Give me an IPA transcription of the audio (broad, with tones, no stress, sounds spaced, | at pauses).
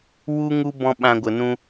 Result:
w u˦ ŋ u˦ b ɔ̃˦ ɓ ã˧ ɡʷ ə˨ n ũ˧